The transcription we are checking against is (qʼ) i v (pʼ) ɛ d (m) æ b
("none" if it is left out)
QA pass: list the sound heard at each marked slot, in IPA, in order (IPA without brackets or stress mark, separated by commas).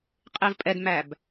qʼ, pʼ, m